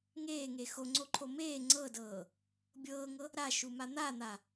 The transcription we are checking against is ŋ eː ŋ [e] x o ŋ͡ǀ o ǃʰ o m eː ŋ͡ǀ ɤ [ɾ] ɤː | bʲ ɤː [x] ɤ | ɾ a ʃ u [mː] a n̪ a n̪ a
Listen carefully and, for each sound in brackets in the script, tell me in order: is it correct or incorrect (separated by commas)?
correct, incorrect, incorrect, incorrect